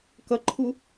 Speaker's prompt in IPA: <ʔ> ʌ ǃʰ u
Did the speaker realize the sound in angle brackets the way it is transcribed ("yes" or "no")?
no